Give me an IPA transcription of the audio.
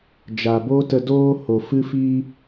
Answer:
d͡ʒ a˨ b o˦ t ə˧ d oː˦ h o˨ f ɨ˦ f iː˦

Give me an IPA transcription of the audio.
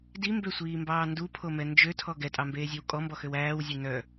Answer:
d i m b ø sʷ iː m b ɑː n d u pʰ o m ɛ n d͡ʒ ø tʰ ɔ ɡ ɛ tʼ ɑ m b eː zʲ e w kʼ ɔ m b ɔ x ø w æː w zʲ e n œ

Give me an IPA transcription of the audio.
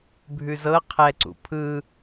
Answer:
bʱ ʉ z ɤ qʰ ɛ ǀ ṵ pʰ ɯ

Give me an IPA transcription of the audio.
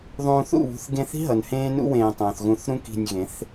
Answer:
ðˤ ũː˧ θ ṵ˦˨ β ṳ˧ θ ɡ ẽ˧ θ i̤˦ ɦ ʌ˨ n h ẽː˦ n ṵ˦ w ẽː˧ tˤ õː˨ θ ɣ ũ˧ θ ɾ ũ˦ k i̤˧ nʲ ɣ ẽ˨˦ θ

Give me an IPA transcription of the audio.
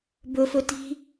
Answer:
b ɵ f ɵ t i̤

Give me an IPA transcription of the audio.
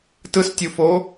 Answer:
t ɯ s tʲ u f o

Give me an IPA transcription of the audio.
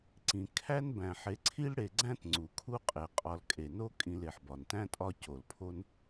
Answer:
ǀ ĩ˩ kʰ æ˥ n b æ̃˩ ħ e˨ ǀʰ i˦ l ɽ e˨ ɡ͡ǀ æ̃˦ t ŋ͡ǀ u˩ kʰ u˥ qʼ e˩ qʼ ɒ˨ l kʼ e˩ n o˥ kʼ ĩ˨ l e˩ ħ b ɒ˩ n t æ̃˥ tʼ ɒ˦ c o˩ l pʰ o˦ n

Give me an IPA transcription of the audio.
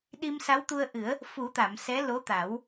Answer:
ɗ i˧ m s a˧˥ w t̪ u˧ ə̯ ʔ ɨ˨˩˦ ə̯ | f u˨˩˦ t̪ a˨˩˨ m s ɛ˧˥ l o˧˥ t̪ a˨˩˦ w

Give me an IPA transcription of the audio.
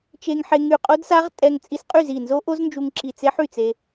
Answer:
t͡ʃ e˧ ŋ ħ e˧ ŋ y˧˩ qʼ o˦˥ d s a˦˥ ʁ tʼ ɛ˧ ŋ t͡sʼ i˧ s qʼ y˥˩ z i˧˩ n z o˦˥ ʔ o˦˥ z n d͡ʒ u˧ ŋ ǁ i˧˩ t͡s e˦˥ ħ y˥˩ t͡s e˧

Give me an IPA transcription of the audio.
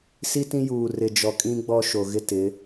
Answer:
s i˦ t ĩ˦ j uː˨ r ɪ˨ d͡ʒ ɔ˨ kʼ ĩ˦ ɡ͡b ɔ˦ ʃ o˨ ɣ ɪ˦ t ɪ˨˦

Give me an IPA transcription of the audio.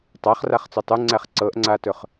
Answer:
tˤ a χ r a χ t͡s ɵ tˤ u ŋ͡ǀ æ χ ǀ ɤ ʔ ŋ͡ǀ a t ɵ χ

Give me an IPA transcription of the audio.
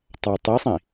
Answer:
tˤ a tˤ i sˤ ĩ

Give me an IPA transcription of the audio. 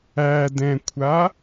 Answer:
æ d ɛ̃ kʷʰ a

